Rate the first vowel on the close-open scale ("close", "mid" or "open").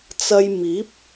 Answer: open